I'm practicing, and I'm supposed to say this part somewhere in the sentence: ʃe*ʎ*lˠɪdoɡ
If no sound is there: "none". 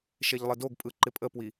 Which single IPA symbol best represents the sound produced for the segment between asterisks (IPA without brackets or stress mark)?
ʎ